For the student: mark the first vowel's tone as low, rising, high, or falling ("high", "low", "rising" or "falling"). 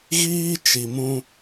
high